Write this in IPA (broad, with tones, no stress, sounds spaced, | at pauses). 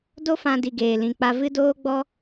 d o˦ f ã˧ d i˧ ɡ eː˨ l ĩ˨ k͡p a˧ v ɨ˦ d oː˦ ɡ͡b ɔ˦